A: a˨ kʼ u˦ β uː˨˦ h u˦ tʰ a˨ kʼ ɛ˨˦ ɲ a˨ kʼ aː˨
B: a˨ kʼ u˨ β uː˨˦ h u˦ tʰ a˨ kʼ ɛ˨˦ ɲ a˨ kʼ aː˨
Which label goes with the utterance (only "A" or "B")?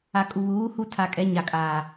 B